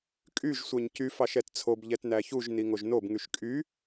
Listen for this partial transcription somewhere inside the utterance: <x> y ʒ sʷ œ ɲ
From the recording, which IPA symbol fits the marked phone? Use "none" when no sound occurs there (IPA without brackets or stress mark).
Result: kʼ